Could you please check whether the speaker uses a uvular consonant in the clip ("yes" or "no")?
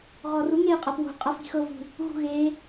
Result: yes